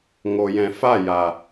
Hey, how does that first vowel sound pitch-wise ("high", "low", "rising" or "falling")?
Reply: low